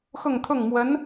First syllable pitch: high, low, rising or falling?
falling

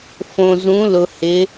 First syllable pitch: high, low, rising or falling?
low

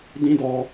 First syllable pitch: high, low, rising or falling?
high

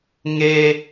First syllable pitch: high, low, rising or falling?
high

